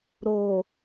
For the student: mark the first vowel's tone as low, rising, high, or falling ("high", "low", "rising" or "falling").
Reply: low